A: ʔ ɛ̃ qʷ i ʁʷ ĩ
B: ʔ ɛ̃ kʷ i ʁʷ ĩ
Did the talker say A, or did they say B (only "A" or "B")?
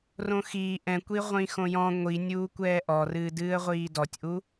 B